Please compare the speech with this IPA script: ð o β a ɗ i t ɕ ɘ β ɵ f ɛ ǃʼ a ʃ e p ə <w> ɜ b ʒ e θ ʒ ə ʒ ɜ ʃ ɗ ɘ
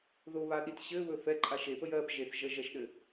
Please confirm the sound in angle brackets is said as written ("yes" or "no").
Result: no